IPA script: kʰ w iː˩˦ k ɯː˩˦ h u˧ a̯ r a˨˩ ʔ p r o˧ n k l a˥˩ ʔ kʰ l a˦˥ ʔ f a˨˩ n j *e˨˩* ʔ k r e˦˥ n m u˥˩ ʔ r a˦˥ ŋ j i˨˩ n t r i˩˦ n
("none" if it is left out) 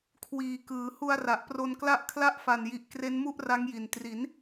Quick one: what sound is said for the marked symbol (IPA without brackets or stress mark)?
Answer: i˨˩